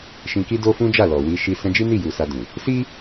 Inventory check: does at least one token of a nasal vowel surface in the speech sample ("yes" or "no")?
yes